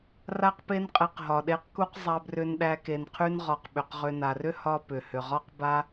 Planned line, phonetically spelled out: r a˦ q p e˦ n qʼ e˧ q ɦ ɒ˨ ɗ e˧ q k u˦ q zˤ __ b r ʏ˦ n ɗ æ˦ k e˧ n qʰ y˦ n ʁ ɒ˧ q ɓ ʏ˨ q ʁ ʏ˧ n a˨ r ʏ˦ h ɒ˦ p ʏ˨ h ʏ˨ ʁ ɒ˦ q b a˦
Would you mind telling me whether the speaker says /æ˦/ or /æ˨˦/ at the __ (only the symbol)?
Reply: æ˦